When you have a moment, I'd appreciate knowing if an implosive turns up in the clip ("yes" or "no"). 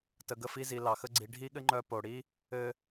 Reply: yes